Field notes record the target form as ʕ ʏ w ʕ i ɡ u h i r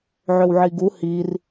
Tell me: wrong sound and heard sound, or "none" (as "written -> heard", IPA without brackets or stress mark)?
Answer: none